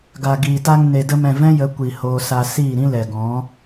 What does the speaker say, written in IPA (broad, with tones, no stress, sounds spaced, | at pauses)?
ɡ a˨ ɡ iː˨ t a˧ ŋ n e˨ d ə˧ m ɛ̃˨ v ɛ̃˦ j ə˨˦ kʷ i˨ h oː˧ s a˧ s iː˦˨ ɾ ĩ˦ l ɛ˨ ɡ ɔ̃˨˦